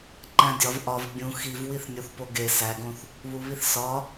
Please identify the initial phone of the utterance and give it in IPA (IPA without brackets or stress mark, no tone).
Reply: ǃ